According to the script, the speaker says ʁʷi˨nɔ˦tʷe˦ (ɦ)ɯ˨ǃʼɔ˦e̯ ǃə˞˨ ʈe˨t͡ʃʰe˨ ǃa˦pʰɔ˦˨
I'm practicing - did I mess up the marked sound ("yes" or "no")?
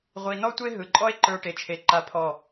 no